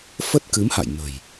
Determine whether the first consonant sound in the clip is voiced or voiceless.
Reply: voiceless